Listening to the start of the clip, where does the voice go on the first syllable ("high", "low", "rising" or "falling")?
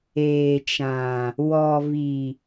low